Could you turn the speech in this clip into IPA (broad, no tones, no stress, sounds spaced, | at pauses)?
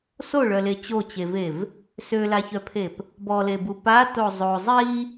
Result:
s o ɭ œ l e t͡ɕ o t͡ɕ e v e v | s ø l a ç œ pʰ e p | b ɔ l e b u p a t o zˤ o zˤ i